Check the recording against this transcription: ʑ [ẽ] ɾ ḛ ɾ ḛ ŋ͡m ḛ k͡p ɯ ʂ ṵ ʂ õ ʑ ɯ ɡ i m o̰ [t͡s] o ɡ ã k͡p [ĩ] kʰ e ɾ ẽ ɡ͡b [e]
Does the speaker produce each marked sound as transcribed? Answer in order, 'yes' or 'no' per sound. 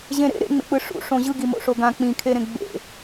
yes, no, yes, no

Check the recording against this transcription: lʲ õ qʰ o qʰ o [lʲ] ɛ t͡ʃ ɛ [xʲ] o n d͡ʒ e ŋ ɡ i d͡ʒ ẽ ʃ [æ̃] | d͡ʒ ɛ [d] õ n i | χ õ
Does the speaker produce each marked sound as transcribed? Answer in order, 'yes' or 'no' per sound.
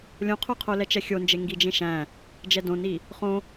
no, yes, yes, yes

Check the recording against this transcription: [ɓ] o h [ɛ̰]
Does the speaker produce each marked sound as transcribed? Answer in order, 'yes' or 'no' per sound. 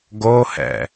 no, yes

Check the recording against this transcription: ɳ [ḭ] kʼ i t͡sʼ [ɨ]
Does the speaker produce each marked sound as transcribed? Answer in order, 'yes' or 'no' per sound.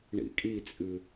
yes, yes

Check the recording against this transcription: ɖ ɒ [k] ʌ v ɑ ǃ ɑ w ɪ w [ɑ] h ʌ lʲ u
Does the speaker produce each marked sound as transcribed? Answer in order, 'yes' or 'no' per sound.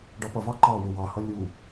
no, yes

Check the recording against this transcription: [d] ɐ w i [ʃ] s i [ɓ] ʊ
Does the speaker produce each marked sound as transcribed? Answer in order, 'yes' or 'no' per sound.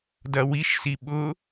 yes, yes, yes

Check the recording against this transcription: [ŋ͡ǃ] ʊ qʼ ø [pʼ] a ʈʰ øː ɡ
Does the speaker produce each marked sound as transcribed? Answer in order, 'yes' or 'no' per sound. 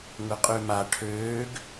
no, no

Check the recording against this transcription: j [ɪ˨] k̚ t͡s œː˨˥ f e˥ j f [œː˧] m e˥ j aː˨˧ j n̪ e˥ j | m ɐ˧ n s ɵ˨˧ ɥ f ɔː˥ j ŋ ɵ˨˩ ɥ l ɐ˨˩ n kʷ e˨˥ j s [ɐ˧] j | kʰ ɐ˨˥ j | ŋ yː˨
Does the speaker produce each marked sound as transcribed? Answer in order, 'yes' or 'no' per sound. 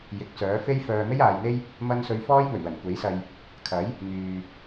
yes, yes, yes

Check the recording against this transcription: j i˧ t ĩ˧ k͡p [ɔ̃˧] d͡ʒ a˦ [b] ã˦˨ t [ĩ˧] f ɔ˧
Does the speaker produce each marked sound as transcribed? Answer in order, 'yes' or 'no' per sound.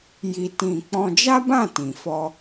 yes, yes, no

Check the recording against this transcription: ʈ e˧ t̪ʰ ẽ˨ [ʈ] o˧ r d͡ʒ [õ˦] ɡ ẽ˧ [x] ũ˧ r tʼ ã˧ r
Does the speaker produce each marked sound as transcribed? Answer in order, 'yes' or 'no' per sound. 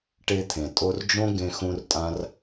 no, yes, yes

